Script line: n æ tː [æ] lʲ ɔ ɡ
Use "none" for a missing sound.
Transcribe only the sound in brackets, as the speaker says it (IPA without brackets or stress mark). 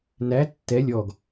ɛ